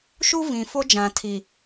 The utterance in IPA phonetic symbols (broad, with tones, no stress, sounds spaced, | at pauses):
ʃ u˦ v ĩ˨ f o˦ d͡ʒ ã˨ tʰ i˨